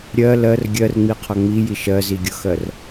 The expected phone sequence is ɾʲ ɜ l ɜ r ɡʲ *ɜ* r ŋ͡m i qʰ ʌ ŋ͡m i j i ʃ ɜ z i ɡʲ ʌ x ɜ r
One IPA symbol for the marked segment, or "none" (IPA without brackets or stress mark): ɜ